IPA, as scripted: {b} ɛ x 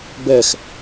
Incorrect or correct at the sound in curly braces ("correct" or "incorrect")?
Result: correct